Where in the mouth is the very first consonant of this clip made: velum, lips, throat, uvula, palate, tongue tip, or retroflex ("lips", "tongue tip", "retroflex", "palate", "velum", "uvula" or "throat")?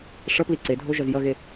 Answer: retroflex